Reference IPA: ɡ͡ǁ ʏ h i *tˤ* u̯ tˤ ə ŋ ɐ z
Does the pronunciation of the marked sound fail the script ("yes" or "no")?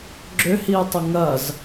yes